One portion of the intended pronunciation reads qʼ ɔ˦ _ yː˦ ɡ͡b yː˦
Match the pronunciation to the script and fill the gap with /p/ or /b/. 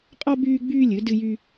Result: b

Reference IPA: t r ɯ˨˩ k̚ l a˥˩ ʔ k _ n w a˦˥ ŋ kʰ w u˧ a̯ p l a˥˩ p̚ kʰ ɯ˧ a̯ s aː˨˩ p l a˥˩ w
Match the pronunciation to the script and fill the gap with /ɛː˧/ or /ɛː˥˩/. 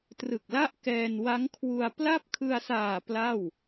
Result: ɛː˧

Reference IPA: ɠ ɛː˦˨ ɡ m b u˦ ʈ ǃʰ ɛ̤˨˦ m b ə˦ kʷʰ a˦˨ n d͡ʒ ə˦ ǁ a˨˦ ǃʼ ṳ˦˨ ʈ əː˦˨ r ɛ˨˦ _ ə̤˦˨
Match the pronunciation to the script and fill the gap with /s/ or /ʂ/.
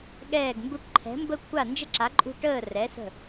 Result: s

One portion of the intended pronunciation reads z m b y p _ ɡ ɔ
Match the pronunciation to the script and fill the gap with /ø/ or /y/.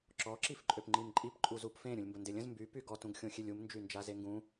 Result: y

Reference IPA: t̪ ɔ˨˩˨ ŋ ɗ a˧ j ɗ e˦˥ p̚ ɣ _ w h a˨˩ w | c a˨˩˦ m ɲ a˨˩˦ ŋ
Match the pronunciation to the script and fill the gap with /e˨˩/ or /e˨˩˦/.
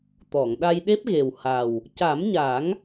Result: e˨˩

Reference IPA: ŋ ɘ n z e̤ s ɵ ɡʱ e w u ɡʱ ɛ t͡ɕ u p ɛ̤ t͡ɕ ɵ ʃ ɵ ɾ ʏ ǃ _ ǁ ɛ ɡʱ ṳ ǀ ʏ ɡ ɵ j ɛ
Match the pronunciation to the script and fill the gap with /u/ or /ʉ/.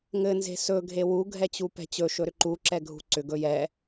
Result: u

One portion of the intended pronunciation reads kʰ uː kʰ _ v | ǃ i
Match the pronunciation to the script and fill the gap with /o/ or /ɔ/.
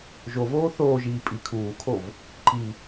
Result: o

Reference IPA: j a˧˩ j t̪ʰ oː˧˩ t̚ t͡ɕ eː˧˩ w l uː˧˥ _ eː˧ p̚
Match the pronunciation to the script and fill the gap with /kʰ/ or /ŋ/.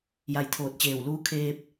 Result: kʰ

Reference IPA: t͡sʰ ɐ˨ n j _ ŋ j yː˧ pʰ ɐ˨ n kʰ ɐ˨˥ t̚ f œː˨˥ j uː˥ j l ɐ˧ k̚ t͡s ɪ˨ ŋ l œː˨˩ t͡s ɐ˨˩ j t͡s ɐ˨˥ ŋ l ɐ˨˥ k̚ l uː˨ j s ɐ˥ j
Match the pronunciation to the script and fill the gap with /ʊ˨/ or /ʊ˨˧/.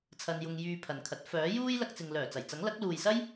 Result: ʊ˨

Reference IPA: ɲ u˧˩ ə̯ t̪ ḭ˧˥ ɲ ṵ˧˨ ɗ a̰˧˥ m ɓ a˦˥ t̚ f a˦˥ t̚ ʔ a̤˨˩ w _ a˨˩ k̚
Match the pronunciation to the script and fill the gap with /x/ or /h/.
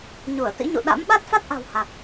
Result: h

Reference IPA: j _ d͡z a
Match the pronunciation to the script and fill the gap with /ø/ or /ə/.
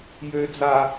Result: ø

